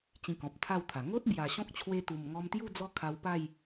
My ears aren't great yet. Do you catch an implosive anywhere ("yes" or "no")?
no